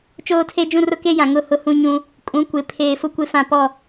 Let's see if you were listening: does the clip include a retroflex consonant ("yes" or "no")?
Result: no